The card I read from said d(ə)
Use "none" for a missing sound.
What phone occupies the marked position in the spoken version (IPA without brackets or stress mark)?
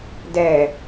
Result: ɛ